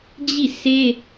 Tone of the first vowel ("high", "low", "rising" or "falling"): falling